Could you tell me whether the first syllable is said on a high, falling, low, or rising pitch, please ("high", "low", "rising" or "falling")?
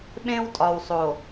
high